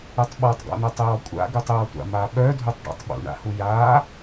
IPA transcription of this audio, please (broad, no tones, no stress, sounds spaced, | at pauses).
u tˤ ɓ ɔ tˤ ɡ ɔ̰ n œ tˤ j ɔ kʷʼ a̰ ɡ u tˤ j ɔ tʷ a̰ m a ɓ œ dʱ u tˤ ɖ a̰ tˤ ɓ ṵ ɳ a̰ h u j a